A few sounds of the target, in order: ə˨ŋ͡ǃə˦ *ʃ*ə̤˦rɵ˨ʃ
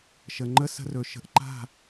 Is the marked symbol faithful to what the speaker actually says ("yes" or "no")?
no